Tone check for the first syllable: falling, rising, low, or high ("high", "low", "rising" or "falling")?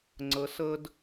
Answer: rising